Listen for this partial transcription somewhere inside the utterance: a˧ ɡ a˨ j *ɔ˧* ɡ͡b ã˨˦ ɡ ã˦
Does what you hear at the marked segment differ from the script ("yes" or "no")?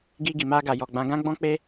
yes